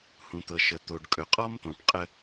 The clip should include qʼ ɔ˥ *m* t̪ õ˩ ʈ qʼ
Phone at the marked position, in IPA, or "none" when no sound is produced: m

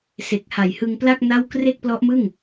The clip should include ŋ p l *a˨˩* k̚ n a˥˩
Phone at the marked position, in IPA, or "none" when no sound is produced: a˥˩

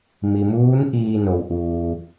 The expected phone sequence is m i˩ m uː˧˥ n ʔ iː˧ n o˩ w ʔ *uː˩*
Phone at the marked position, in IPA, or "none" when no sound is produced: uː˩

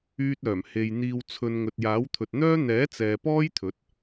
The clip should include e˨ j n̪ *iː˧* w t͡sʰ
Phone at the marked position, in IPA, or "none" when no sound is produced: iː˧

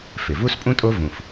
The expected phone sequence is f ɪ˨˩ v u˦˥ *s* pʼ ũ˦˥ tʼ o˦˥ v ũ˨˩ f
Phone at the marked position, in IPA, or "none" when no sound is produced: s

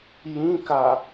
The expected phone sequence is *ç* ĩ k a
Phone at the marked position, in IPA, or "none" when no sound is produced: j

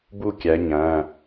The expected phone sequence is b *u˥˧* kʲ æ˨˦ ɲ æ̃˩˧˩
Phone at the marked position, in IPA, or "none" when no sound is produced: u˥˧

